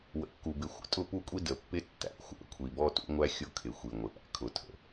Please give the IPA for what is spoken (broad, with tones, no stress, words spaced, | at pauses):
wə̰˨kːu˨bɪ˨ xʷə̰˨tʼʊ˦˨pu˦˨kʷʼi˦ də˨pːɪ˦ tːæ̰˨xʷæ̰˨ kʷʰi˨bɔ˦tṵ˦ŋʷæ˦ xʲʊ˦˨kʰɪ˨ xʷi˨ŋʷɪ˨ʔæ̰˨ kʰʊ˦ tʰə̰˦